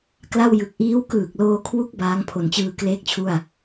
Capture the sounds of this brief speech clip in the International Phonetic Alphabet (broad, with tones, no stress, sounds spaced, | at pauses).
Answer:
k l a˥˩ w j ɯ˨˩ k̚ ʔ iː˦˥ w k ɯː˨˩ k̚ l oː˧ kʰ w u˦˥ k̚ b aː˦˥ ŋ pʰ o˨˩ n t͡ɕ ɯː˧ k l eː˥˩ k̚ t͡ɕʰ u˥˩ a̯